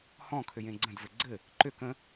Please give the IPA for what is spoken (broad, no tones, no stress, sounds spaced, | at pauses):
h ɔ̃ kʰ ʏ j ẽ ɡ͡ǀ ə̃ d v ɘ ɡ͡ǀ ɘ | ǃ ʏ k ə̃